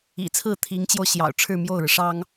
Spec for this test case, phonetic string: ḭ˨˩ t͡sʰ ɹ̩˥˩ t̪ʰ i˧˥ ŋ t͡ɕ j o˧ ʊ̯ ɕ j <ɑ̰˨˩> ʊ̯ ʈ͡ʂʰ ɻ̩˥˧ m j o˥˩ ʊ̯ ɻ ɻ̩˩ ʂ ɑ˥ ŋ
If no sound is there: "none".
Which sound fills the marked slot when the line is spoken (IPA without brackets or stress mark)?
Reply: ɑ̰˨˩